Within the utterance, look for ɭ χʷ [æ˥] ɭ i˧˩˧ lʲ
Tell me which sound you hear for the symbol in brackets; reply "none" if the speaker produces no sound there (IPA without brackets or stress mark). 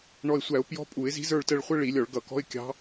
ə˥